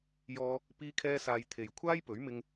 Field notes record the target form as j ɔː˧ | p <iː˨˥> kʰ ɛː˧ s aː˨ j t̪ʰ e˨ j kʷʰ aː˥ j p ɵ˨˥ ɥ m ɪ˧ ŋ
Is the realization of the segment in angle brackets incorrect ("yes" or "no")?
yes